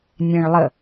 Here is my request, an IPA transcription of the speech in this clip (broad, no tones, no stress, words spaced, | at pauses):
nʲẽɭlˠə